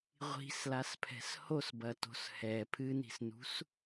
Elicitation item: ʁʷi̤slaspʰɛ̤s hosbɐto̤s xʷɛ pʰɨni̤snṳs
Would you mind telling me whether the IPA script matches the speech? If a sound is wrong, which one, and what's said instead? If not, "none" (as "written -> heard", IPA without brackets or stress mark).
xʷ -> h